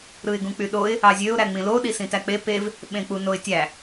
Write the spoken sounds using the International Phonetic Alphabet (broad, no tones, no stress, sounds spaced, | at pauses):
ɾ ɯ ɪ̯ ɡ ũ k͡p y ɗ o ɪ̯ | ɑ zʲ ø ʊ̯ ɾ æ ŋ͡m ĩ l o ɗ i s ĩ t æ k͡p e p e v | ɓ ẽ k͡p u n o ɪ̯ tʲ æ